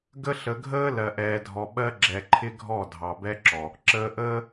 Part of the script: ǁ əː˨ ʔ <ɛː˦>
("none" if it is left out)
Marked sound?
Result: əː˦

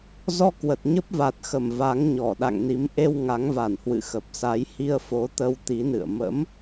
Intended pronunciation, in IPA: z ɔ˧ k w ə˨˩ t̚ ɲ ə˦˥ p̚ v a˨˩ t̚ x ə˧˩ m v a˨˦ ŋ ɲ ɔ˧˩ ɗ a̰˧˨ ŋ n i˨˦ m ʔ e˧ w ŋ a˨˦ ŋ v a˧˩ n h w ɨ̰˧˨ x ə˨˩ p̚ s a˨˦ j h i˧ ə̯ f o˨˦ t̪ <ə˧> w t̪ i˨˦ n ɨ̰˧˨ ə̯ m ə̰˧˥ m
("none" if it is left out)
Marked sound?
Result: ə˧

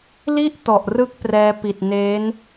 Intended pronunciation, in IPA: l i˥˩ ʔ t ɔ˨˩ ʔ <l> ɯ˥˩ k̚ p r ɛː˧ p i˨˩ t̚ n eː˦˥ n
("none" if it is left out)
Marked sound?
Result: r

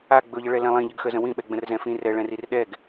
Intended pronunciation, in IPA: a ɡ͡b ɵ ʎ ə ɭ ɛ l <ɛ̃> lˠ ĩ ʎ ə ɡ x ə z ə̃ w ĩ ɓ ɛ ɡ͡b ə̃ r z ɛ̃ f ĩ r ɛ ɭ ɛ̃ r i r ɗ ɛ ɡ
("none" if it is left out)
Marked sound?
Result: ɛ̃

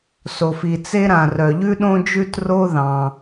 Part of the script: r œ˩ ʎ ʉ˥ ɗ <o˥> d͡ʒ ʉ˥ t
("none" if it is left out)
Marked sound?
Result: õ˥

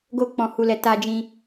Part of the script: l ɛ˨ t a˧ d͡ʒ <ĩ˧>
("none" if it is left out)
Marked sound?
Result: ĩ˧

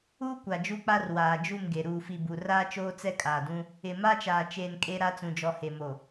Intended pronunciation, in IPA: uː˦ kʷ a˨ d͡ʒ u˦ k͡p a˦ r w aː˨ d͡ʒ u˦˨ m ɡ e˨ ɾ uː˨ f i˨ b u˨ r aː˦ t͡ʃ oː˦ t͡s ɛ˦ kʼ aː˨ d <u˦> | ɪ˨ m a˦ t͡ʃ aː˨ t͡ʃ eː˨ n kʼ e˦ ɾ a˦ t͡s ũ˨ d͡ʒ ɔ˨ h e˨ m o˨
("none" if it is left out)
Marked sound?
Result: ũ˦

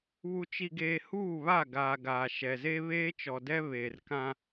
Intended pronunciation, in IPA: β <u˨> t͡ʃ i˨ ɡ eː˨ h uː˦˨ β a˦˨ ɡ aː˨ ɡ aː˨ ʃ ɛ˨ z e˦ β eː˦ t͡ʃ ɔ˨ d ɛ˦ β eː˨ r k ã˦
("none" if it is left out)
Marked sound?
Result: u˨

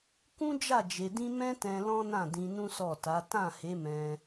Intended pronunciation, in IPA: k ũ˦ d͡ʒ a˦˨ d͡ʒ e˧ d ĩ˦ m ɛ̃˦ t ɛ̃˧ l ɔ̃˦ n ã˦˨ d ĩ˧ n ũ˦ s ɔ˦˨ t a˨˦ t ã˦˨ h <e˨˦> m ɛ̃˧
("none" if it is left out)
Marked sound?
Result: e˨˦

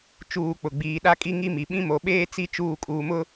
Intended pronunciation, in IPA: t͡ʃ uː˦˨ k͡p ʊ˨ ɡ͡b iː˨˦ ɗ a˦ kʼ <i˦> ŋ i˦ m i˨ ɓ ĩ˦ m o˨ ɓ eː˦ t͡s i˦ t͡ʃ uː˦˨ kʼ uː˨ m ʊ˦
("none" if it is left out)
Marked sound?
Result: i˦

